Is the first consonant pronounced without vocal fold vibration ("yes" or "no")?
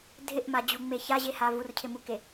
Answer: no